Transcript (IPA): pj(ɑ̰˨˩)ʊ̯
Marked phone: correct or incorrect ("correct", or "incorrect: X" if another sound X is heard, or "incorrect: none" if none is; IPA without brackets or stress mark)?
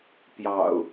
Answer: correct